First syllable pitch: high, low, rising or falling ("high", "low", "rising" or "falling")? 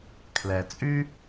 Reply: low